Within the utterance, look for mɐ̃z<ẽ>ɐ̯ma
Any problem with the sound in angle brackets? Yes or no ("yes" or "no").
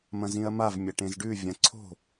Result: yes